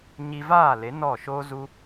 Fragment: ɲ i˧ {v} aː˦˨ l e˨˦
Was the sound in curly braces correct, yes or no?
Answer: yes